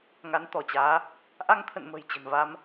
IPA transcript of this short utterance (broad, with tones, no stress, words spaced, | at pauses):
ŋa˨˦n t̪ɔ˧˩t͡ɕaː˨˦ | ʔa˧ŋt̪ʰə̰˧˨n mə̤˨˩jt͡ɕə̤˨˩n va˧m